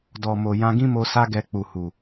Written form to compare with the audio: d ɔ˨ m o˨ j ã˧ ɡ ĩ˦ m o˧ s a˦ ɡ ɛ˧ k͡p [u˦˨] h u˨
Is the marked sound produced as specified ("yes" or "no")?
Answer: no